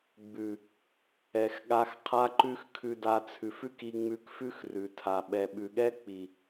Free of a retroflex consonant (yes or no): yes